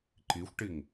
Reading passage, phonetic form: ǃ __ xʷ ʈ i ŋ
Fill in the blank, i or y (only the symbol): i